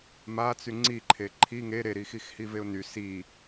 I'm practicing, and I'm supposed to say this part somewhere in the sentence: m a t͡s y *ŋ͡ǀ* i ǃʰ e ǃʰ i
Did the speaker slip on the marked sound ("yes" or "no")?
no